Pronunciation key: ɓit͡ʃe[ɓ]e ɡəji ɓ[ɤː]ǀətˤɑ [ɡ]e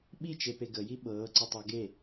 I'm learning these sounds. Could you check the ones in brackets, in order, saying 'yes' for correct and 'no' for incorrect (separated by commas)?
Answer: no, yes, yes